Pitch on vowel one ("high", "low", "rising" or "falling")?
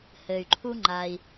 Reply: low